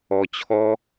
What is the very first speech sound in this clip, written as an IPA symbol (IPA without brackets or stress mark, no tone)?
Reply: ɔ